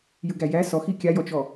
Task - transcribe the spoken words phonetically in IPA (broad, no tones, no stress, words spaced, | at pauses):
jɯɡæjæ sɔxi kʲajɔt͡ʃɔ